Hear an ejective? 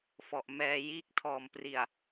no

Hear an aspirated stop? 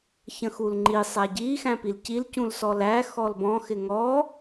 no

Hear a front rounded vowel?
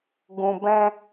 no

